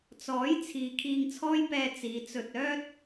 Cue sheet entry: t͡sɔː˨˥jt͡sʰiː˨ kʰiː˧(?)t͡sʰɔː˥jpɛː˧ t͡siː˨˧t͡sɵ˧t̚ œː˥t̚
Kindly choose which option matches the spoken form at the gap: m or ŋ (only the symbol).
ŋ